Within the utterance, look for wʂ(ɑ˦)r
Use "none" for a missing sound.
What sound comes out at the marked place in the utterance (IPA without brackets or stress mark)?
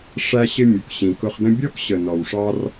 ɑ˦